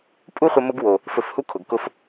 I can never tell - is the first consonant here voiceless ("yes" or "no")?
yes